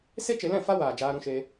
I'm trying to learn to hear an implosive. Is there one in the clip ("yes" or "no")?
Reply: no